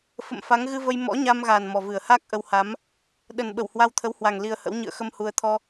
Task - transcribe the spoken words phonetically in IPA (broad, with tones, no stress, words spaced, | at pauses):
fə̰˧˨mfa˨˦ŋ ɣɨ˧və˧j mɔ̰˧˥ɲa˧mɣa˨˩n mɔ˨˩vɨ˨˩ə̯haː˦˥k̚ ʔə˧wha˨˦m | ɗə˨˩n ɓə˧˩whwa˧wt̪ʰə˨˦whwa˨˩ŋ li˧ə̯hə̰˧˥w ɲɨ̰˧˨ə̯xə˧m hu˧ə̯ t̪ʰɔ˧